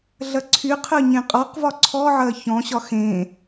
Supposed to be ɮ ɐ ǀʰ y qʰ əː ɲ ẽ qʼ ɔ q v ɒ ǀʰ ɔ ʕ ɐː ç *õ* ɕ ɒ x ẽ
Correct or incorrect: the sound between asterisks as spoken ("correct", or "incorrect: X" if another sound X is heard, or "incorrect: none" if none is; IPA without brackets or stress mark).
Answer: incorrect: ɔ̃